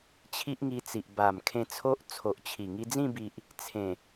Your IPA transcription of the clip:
t͡ɕʰ i˦ ʔ ŋ i˧ t͡s i˨ ʔ b a˨˩ m kʰ ẽ˧ t͡sʰ o˦ ʔ t͡sʰ o˨ ʔ t͡ɕʰ i˨˩ ŋ i˧ d͡z ĩ˥˧ b i˨ ʔ | t͡sʰ ẽ˨˩

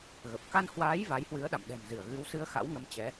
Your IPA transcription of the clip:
ɣ ə˨˩ p̚ k a˧ n h w aː˨˦ j v a˨˦ j h w ɨ˨˦ ə̯ ɗ a̰˧˨ m ɗ ɛ̤˨˩ m z ɨ˧˩ ə̯ ɣ ɨ˨˦ w s ɨ˧ ə̯ x a̰˧˥ w ŋ ə˨˦ m t͡ɕ ɛ˨˦

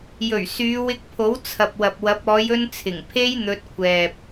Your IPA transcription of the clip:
j ɵ˨˩ ɥ s yː˨˧ w ɪ˧ k̚ pʰ o˨˥ w t͡sʰ ɐ˨ p̚ w ɐ˨ p̚ w ɐ˨˥ p̚ ɔː˨˧ j ɵ˧ n t͡sʰ ɪ˨˩ ŋ pʰ e˥ j n̪ ɵ˧ t̚ kʷʰ ɛː˨ p̚

